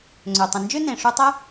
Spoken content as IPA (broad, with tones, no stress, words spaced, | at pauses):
ŋ͡ǀø˩tˤə̃˩ nd͡ʒø˥nẽ˩ʂu˧tˤə˥